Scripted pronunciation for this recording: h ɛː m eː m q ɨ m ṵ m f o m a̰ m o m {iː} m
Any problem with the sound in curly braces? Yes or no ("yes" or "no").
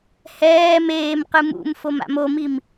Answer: yes